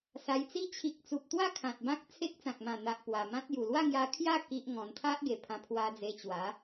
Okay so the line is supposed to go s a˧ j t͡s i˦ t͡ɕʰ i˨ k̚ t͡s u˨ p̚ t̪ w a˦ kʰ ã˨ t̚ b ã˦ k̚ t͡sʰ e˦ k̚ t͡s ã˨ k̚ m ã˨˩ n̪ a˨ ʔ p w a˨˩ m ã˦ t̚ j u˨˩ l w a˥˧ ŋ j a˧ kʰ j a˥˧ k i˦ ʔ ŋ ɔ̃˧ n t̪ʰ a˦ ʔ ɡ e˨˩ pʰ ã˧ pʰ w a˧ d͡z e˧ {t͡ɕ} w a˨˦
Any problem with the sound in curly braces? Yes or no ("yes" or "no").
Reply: no